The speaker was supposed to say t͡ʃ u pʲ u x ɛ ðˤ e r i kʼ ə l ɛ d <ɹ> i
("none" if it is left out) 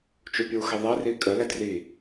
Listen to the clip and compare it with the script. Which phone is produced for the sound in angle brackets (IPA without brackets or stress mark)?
r